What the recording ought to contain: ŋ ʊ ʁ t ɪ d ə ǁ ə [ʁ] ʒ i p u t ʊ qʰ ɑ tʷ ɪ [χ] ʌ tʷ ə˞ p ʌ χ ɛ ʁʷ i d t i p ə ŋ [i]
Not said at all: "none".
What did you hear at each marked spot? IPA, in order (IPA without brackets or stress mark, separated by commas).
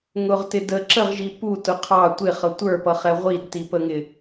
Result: ʁ, χ, ɪ